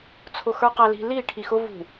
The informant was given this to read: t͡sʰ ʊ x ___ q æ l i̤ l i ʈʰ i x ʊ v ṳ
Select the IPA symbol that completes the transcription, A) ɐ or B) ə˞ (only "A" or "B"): B